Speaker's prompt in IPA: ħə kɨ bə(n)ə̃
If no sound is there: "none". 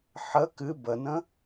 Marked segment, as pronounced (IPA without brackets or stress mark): n